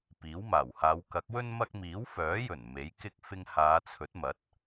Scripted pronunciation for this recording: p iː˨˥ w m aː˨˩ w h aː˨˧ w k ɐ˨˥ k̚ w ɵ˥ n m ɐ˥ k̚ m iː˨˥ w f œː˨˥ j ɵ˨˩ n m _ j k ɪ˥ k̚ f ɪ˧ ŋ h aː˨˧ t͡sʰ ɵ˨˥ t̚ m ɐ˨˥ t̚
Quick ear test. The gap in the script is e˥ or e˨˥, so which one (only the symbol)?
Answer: e˨˥